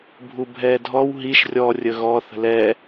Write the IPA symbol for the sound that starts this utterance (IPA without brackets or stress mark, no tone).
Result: bʱ